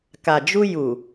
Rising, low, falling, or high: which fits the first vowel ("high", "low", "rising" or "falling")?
low